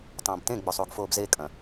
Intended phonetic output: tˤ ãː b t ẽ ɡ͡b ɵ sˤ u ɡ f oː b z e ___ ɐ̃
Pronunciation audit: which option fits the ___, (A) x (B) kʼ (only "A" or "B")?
B